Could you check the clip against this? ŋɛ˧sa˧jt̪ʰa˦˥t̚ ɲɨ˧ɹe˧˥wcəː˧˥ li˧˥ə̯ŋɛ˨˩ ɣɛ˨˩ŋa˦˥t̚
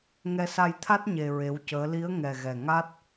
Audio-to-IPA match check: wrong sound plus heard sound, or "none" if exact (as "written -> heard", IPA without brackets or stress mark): ɨ˧ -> e˧